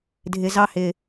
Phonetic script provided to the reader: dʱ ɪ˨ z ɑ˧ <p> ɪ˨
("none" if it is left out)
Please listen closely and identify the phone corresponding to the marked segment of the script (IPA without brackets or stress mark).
h